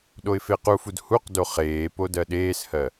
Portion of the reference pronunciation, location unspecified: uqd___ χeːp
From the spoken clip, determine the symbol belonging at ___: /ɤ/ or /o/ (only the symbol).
o